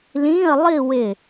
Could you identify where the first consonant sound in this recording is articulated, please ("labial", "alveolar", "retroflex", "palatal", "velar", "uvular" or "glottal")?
alveolar